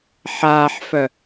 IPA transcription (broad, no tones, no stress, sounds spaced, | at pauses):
ħ aː ħ f œ